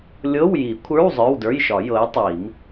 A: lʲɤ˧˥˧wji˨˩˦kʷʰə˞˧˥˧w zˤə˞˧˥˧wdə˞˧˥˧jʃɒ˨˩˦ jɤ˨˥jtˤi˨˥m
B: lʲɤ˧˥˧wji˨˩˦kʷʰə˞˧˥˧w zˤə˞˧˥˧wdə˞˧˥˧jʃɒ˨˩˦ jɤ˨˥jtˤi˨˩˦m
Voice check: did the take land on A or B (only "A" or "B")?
B